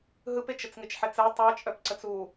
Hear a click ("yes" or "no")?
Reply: yes